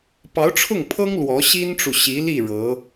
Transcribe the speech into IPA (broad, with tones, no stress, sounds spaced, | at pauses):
p ɑ˧˥ ʊ̯ ʈ͡ʂʰ ʊ˥˩ ŋ pʰ ɤ˥ ŋ l w ɔ˧˥ ɕ i˥ n ʈ͡ʂ u˨ ɕ i˧˥ l i˥˩ ɻ ɤ˧˥